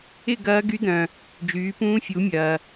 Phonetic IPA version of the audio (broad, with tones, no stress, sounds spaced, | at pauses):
ɪ˥˧ ɡ ɐː˦˥ ɡ y˦˥ d̪ œ̃˨ | d͡ʒ yː˨˦ p ũː˦˥ fʲ u˨˦ mʲ ɐː˨